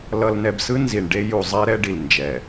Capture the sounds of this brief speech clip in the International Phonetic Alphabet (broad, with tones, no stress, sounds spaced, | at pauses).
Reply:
l ʌ˨ l n ɛ˨ b s ɯ˦ n z i˨ ɳ ɖ e˦ j u˨ zˤ ɛ˦ ɾ ɛ˦ ɖ i˨ l n d͡ʒ ɛ˨